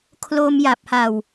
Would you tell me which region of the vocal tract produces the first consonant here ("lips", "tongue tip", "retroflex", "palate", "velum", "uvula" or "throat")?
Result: velum